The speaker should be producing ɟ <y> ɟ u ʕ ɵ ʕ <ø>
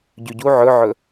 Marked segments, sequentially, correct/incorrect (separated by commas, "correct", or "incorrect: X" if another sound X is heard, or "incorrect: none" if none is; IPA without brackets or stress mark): correct, incorrect: ɵ